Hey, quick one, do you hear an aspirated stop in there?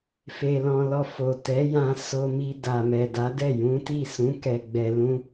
no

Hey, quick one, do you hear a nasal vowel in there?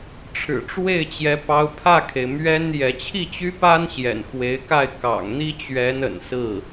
no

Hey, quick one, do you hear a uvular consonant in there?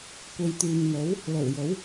no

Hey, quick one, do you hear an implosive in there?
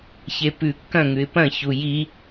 no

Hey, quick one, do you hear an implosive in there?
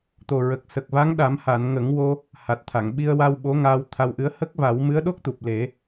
yes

